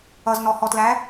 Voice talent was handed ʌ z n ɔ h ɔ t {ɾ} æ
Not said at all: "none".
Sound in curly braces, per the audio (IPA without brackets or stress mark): l